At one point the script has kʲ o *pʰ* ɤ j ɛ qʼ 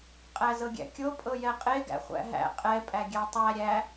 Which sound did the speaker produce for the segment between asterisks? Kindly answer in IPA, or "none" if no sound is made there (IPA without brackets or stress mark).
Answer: pʼ